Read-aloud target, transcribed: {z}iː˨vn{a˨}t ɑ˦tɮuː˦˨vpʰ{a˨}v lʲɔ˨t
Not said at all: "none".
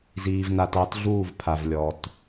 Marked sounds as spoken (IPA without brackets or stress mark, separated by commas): z, a˨, a˨